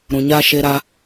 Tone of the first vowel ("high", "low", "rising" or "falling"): low